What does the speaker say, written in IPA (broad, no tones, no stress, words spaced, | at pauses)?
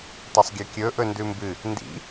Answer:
tˤɐsˤɡʲɐkʲɵ ʔɵndʉmbɨ | ndḭ